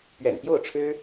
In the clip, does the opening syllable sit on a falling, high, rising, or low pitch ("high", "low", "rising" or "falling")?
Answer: low